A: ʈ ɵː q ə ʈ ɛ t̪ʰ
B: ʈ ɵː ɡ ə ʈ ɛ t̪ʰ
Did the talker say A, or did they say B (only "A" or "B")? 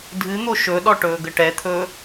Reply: B